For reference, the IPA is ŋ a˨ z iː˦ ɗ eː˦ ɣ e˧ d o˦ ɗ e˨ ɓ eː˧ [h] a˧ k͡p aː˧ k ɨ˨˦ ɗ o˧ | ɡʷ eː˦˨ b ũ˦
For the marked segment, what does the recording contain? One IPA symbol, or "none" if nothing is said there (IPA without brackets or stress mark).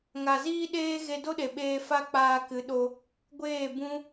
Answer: f